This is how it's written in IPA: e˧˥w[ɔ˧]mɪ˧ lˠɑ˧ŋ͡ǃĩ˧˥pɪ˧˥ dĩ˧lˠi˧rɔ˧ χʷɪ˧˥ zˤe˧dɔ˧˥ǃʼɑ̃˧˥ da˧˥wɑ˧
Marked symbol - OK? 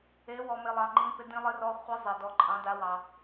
yes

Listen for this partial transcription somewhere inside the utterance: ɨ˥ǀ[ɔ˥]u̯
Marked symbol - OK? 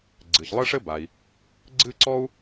yes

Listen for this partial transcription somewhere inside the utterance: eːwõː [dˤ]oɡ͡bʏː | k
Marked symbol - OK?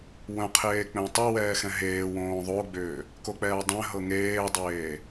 no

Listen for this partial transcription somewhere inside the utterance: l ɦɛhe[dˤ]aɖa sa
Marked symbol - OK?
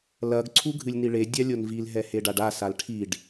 no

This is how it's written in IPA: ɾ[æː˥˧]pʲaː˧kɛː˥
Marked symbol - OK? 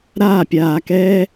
no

